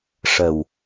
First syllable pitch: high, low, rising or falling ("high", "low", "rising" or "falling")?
low